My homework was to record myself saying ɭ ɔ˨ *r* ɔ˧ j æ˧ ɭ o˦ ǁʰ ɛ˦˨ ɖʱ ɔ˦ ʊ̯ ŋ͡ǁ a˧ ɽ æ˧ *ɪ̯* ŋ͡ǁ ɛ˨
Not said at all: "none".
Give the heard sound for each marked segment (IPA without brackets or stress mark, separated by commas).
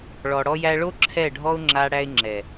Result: ɽ, ɪ̯